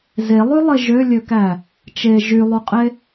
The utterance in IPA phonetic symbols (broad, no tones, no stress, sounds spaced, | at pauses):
z e lˠ y lˠ e ʒ ø lʲ ø k æ | t͡ʃ e ʒ y lˠ u qʼ e